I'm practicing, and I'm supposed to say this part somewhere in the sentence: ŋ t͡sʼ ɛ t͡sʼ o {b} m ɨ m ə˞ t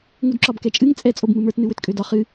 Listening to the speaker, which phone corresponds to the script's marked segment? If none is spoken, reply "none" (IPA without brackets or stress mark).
b